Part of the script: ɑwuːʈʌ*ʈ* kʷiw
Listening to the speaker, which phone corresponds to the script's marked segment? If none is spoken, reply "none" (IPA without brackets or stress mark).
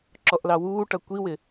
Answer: none